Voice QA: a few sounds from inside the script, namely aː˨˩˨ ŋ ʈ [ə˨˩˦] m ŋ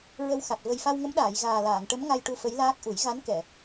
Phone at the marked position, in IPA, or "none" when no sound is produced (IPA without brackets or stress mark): ə˧˥